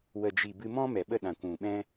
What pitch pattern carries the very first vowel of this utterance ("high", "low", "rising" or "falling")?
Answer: low